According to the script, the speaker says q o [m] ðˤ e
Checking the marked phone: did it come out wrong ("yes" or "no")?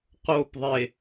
yes